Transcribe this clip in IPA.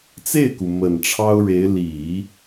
t͡s e˥˩ ɪ̯ k u˩ m ə˨˩ n ʈ͡ʂʰ ɑ˥ ʊ̯ ɻ e˧˥ ɪ̯ l i˨˩˦

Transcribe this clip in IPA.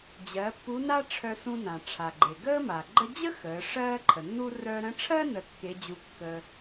d͡ʑ ɜ˩˧ pː u˧˥ n a˥ ʈ͡ʂʰ œ˧ s ũ˧ n ã˩ ʈ͡ʂʰ a˩ ɡ͡ǃ e˩ ɡ əː˥ m a˩ ɡ͡ǃ ə˥ d͡ʑ ə˥ x əː˩˧ ʂ ɜː˥ ǃʰ ə˩ nː u˥ r œ˧ ɾ ə̃˧˥ ʈ͡ʂʰ ɜ˥ n ə˧ kː e˧˥ d͡ʑ u˧˥ kː əː˧

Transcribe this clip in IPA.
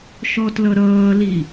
ʃ ɔ t l ʌ ɾ ʌː l i

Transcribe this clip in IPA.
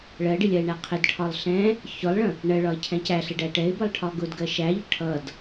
ɭ ɜ ɖ ɪ lʲ ɜ ɪ̯ ɳ æ qʰ ɪ d ʈʰ ɒ lˠ ɬ ɛ̃ | ç ʊ lˠ ɭ ə̃ | ɳ ɜ ɭ ɒ ɪ̯ cʰ ɛ̃ c æ ɬ ɪ ɖ æ ʈ ɛ ɪ̯ b ə lˠ ʈʰ ɒ ɡ ʊ d ɡ ɜ ʃ æ ʎ ə ʈʰ ʌ d

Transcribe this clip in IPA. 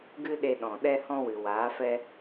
ɡ ɨ˦ ɗ e˧ ɗ ɔ̃˨ ɗ ɛ˦ h ɔ̃˦ w ɨ˨ w aː˨˦ f ɛ˦

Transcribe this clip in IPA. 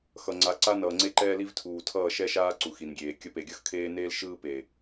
x ʌ˨ ŋ͡ǀ a˨˦ ǀ a˦ n ʌː˨ ŋ͡ǀ e˦ ǃ ɛː˦ l i˦ v tʰ uː˨ tʰ ʌː˦˨ ʃ ɛ˦ ʃ aː˦ ǀ u˨ x i˨ n ɡʲ eː˨ kʲ ʌ˧ p e˨ ɡʲ ʌ˦ x kʰ eː˦ n eː˦ l ʃ ɯː˦ p e˨

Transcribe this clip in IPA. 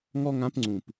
ŋ ɔ˥ ŋ ã˧˥ p ŋ͡ǀ ũ˨˩ p

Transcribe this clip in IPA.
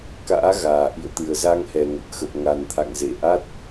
k a̰ː˧˥ ɣ aː˨˩ ʔ ḭ˧˨ ə̯ t̪ ɨ˨˩ ə̯ z a˧ ŋ h ɛ˨˩ ŋ ə˨˩ t̚ x ə˨˩ p̚ ŋ a˨˩ n t̪ʰ a̰˧˨ ŋ z ḛ˧˨ ʔ a˦˥ t̚

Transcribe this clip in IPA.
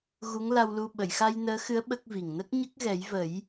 ɣ u˧˥ ŋ l a˧ w l u˧ ɓ ə˨˩˨ j x a˧ j n əː˧˥ x ɨ˧˥ ə̯ ɓ ə˦˥ k̚ v i˨˩ ŋ n ə˦˥ k̚ ɲ ə˦˥ k̚ ɣ ɛ˨˩˦ j v ə˨˩˦ j

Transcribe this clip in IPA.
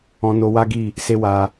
ɔ̃˧ n o˧ w a˦ ɡ i˦˨ | s e˦ w a˧

